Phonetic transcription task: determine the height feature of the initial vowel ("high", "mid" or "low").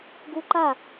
high